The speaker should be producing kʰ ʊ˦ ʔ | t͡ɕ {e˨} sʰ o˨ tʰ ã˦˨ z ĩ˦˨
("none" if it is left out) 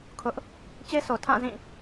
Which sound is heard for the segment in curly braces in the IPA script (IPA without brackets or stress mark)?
e˦